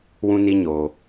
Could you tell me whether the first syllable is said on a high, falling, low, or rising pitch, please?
high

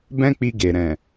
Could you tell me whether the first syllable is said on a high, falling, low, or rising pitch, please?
high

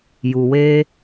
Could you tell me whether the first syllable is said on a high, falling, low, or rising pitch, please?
low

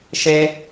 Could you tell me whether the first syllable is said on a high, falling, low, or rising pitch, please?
high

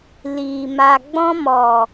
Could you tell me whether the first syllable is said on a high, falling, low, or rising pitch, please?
low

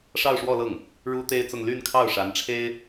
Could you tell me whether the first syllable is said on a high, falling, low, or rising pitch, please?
falling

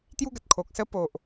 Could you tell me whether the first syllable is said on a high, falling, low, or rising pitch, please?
high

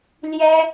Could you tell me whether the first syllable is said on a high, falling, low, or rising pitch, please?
high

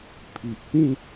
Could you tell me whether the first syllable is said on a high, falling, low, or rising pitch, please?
low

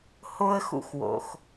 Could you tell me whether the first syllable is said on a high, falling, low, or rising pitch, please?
high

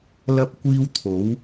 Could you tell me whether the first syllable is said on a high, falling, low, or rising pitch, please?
high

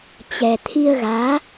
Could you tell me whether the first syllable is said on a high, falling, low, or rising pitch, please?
low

